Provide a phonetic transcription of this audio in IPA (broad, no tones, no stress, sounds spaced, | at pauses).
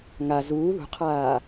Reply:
ŋ a z uː ð ṳ qʰ aː